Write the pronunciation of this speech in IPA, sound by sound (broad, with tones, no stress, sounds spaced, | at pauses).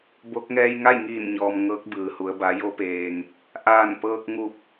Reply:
b o˧˥ k̚ ŋ ɛː˧ j ŋ a˥˨ j ŋ iː˧˩ n ɲ ɔː˩ m ŋ ɤː˧˥ k̚ b ɯː˩ h u˩˧ ə̯ b a˩˧ j o˧ p eː˩ ŋ | ʔ aː˧˩ n p ɤː˧ k̚ ŋ u˧˩ p̚